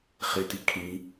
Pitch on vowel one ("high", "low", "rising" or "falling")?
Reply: low